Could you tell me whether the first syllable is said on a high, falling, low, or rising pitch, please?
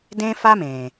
high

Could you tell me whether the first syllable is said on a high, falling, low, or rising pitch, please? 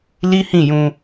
high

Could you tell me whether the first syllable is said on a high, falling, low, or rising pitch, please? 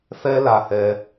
high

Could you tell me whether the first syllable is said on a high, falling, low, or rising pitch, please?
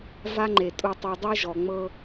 high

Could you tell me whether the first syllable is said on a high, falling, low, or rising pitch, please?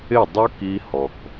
falling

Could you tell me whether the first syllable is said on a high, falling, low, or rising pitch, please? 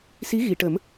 rising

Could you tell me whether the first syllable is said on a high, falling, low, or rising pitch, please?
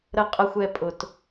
low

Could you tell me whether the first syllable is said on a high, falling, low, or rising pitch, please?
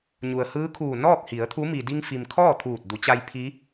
low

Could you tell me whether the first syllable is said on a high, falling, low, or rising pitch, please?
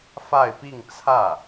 falling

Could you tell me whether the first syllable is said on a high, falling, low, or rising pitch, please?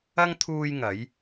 high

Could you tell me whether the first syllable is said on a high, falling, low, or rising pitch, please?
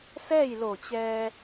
falling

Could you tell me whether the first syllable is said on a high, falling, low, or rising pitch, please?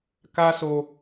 high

